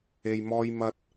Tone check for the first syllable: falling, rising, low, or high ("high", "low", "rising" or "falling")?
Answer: low